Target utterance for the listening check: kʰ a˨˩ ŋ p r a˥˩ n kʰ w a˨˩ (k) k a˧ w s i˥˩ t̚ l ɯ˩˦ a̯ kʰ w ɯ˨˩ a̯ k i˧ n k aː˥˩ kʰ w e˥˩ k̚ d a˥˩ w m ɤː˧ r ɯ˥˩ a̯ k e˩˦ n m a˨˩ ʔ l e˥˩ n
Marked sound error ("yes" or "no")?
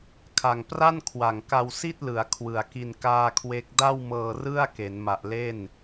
yes